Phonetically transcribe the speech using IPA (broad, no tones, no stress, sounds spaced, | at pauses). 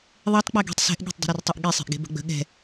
ðˤ e tˤ k͡p ɛ ɡ e̤ tˤ s ɛ̤ ʔ ɠ e̤ tˤ dˤ ə̤ ɾ e r tˤ ɛ ʔ ɠ e sˤ e̤ ʔ ɡ e̤ b ə̤ ɡ͡b ə̤ ɠ ɛ̤